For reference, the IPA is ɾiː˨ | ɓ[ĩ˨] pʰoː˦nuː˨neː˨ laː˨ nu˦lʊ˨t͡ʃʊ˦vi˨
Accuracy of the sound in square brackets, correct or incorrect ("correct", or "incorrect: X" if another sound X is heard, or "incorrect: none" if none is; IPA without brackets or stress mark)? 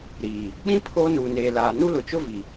incorrect: ĩ˦